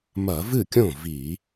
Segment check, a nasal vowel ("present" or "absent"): present